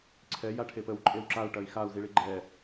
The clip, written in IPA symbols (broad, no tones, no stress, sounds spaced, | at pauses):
ǀʰ ɛ j a ʈʰ e p ə w ǃʼ e w ǁ a u̯ ʈ ɐ i̯ x a u̯ z i ɭ i ɡ͡ǃ ɛ